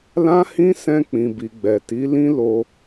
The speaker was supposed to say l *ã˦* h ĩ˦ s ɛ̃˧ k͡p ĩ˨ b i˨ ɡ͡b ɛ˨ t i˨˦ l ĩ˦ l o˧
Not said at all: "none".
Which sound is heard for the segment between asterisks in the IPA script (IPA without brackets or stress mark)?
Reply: ã˦